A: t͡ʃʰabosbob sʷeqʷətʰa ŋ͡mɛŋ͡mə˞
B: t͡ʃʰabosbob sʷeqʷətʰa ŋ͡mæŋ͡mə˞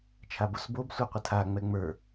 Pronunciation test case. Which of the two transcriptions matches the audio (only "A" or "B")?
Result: A